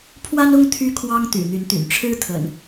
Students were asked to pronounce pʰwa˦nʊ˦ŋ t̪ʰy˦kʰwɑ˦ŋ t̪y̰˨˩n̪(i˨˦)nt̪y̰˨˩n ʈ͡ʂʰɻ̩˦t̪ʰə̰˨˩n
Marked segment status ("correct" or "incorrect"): incorrect